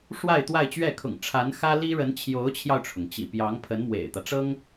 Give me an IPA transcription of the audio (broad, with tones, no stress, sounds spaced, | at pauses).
ʂ w a˥˧ ɪ̯ t̪ w a˥˧ ɪ̯ t͡ɕ ɥ ɛ˥˩ kʰ ʊ̰˨˩ ŋ ʈ͡ʂʰ a˧˥ n x ä˥ l i˥ ɻ ə˧˥ n t͡ɕʰ j o˧˥ ʊ̯ t͡ɕʰ j ɑ˧ ʊ̯ ʈ͡ʂʰ ʊ˩ ŋ t͡ɕ ḭ˨˩ p j ɑ˧˥ ŋ pʰ ə˧˥ n m w ḛ˨˩ ɪ̯ t̪ ä˦ ʈ͡ʂ ɤ˥ ŋ